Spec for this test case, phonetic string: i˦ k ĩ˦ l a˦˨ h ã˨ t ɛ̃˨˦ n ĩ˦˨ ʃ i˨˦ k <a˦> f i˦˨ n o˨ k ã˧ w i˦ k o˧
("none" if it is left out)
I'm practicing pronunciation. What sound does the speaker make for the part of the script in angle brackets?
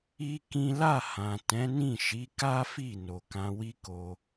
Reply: a˦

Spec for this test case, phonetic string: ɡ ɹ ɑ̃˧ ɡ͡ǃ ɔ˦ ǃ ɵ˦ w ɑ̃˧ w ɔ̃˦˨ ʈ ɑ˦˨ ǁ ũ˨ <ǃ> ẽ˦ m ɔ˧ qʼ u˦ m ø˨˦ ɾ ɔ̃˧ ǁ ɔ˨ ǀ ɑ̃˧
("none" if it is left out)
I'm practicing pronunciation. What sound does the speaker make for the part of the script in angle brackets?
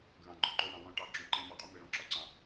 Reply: ǃ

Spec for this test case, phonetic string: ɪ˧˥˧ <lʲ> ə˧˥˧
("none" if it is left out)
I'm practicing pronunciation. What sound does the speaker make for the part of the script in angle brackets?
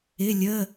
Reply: lʲ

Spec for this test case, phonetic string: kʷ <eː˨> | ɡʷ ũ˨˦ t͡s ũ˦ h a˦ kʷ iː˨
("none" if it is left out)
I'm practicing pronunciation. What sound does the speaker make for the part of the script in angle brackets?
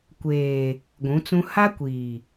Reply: eː˨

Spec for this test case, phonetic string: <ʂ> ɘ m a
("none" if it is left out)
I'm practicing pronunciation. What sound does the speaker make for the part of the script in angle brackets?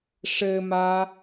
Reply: ʂ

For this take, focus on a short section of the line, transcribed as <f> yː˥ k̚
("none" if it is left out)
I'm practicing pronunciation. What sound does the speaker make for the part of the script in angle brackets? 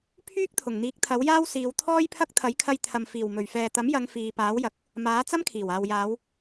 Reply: pʰ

